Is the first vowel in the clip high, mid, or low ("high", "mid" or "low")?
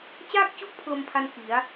low